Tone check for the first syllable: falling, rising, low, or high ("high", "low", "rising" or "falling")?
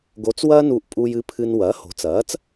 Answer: rising